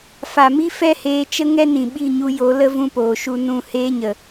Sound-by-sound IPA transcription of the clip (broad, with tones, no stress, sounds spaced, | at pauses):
f a˨ m i˦ f ɛ˦ h eː˧ t͡ʃ ə˦ ŋ ɛ˦ n ĩ˨ ɓ i˦˨ ɲ u˧ j o˨˦ l ə˦ v ũ˦ p oː˨ ʃ u˦ n ũ˦˨ h eː˦ ɲ ə˨